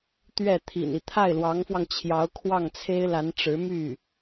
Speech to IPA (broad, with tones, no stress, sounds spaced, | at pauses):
t̪ ɥ ɛ˥˩ t̪ʰ ḭ˨˩ n i˦ t̪ʰ a˥˩ ɪ̯ l w ɑ˧˥ ŋ f w ɑ˧ ŋ t͡ɕʰ j ɑ˧˥ ʊ̯ kʰ w ɑ˥˩ ŋ t͡sʰ e˥ ɪ̯ l a˧˥ n ʈ͡ʂ ɻ̩˧˥ m y˥˩